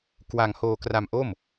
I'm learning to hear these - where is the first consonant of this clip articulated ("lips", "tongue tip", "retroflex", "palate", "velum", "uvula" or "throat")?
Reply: velum